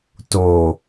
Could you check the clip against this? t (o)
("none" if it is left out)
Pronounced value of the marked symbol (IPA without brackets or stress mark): o